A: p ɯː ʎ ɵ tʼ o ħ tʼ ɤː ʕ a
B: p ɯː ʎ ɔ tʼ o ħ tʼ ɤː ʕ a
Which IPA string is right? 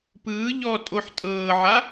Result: B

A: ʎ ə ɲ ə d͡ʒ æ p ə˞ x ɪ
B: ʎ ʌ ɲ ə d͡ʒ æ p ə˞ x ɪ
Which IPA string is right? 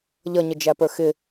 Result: B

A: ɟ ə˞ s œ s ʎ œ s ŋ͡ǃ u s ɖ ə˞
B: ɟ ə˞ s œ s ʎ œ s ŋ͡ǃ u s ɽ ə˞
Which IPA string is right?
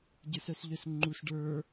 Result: A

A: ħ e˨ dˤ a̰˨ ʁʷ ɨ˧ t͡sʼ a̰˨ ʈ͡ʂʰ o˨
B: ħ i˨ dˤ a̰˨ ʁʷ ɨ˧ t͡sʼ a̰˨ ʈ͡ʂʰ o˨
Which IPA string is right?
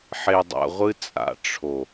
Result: A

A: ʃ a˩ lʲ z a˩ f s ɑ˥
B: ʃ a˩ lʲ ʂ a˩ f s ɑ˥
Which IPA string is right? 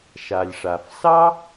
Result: B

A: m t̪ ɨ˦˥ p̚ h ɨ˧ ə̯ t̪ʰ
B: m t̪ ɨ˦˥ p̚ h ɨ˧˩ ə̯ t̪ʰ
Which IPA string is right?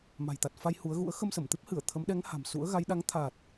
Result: B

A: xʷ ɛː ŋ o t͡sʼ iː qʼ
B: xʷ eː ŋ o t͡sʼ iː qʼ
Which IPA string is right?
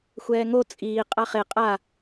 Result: A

